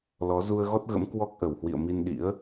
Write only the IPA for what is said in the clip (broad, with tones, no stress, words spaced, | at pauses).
lɔ˨˦ zu˧ə̯ɣɔ˦˥t̚ɣə̰˧˥m kwɔ˦˥k̚ʔə˧˩w hwḭ˧˨ə̯mi˧nɗḭ˧˥ə̯